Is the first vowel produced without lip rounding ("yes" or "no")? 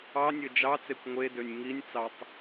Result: yes